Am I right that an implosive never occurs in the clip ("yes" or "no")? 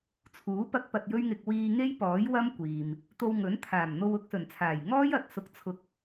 yes